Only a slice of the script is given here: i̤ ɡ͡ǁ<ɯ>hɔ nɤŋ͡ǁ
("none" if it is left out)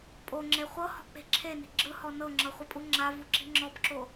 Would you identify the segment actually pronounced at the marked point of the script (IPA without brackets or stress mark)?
ɯ